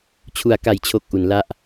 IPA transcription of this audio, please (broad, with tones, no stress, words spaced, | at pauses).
t͡ɕʰu˩˦a̯ka˩˦jt͡ɕʰo˨˩k̚ ʔu˩˦nla˦˥ʔ